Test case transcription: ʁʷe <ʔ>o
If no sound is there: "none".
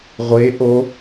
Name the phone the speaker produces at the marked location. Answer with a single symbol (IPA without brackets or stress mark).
ʔ